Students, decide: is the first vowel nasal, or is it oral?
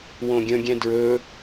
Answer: nasal